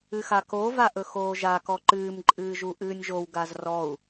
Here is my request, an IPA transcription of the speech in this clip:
ɨxako vaʔɵxoːʒa kɔǃɨːm ǃʼɨːʒuʔɨːnʲʒow ɡazrɔu̯

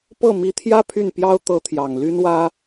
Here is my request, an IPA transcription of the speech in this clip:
pɤ˥˩mi˧˥t̪ʰjä˥ pʰy˥˩npjɑ˥ʊ̯ t̪ɤ˥t̪ʰjɑ˨˩ŋ ly˥nwä˥

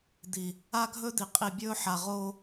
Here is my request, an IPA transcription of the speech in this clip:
d̪i˨ | a˦ɡʱɵ˦d̪i˨ qʼi˨bʲɵː˦ħa˨ ʁo˦

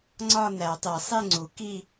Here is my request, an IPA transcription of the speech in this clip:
ŋ͡ǀɒ˥˧næ˨˩˦tˤe˨˩˦ sˤe˥˧ŋ͡ǀu˨˩˦ ki˥˧

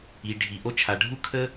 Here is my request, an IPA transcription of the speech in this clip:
i˩ɖʱi˩ ʔo˧t͡ʃʰa˩ ɖʱu˥kʰə˥

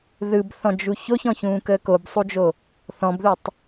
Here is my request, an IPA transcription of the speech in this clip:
ðɯbθɔ̃d͡ʒu çoçɔ̃çũːkəː kobsˤud͡ʒo | θɔ̃bðutˤ

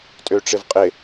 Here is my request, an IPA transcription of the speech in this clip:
tʼøʈ͡ʂɪvqʼɪ

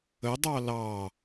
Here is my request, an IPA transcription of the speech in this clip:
ə dˤɑlɑ

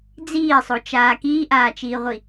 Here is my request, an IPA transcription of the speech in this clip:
d͡ziːsˤot͡ʃaː kiːʔaːt͡ʃiːʁʷi

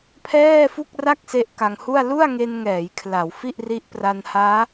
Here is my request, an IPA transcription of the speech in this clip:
pʰɛː˥˩fu˥˩k̚ra˥˩k̚ se˦˥ʔka˧ŋhu˥˩a̯ lu˥˩a̯ŋe˧nŋɛː˩˦j kʰla˩˦w fi˥˩ʔri˦˥ʔ pra˧nhaː˦˥

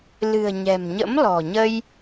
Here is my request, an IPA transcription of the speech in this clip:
lɨ̤˨˩ə̯ɲɛ̤˨˩mɲə̰˧˥m lɔ̤˨˩ɲə˧j

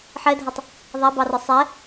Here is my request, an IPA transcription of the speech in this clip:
ħɛdʱɛtˤ | ðˤæbɑrɒ sˤɛ

